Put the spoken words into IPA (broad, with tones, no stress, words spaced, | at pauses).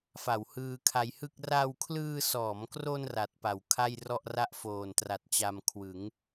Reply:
fa˨˩whɯː˧kʰa˧jhɯ˥˩k̚ ra˧wkʰlɯː˧sɔː˩˦mkro˧n ra˨˩t̚pa˨˩w kʰa˥˩jrɔ˥˩ʔra˥˩ʔ foː˨˩ntra˨˩t̚t͡ɕa˧m kʰwɯ˩˦ŋ